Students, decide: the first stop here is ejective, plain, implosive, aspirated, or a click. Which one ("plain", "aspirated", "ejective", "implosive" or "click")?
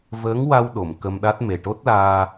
implosive